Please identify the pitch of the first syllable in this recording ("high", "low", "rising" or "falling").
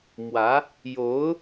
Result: rising